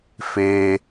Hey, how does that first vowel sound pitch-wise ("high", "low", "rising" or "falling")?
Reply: low